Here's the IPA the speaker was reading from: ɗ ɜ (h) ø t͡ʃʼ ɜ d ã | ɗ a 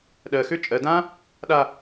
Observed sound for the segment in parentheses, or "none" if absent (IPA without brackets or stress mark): x